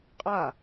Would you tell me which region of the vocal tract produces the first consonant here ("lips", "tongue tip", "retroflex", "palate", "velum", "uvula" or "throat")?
uvula